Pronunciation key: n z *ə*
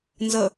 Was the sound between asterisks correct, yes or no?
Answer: yes